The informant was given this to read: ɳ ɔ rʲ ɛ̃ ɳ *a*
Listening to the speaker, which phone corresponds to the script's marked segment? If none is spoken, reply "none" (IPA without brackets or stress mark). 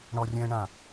ã